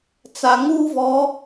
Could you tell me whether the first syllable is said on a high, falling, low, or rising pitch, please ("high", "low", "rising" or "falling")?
low